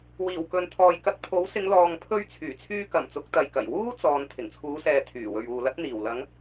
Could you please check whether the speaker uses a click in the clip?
no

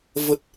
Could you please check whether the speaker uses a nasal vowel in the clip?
no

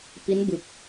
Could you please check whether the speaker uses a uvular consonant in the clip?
no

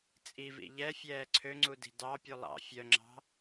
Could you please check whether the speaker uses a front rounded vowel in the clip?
yes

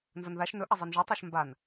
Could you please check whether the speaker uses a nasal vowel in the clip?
no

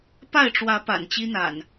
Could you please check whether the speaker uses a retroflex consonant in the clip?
yes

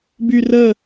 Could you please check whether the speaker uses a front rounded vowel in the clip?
yes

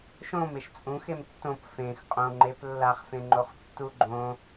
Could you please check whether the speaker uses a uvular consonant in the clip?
yes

